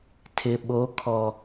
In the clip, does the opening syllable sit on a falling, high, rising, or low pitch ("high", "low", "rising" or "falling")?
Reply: low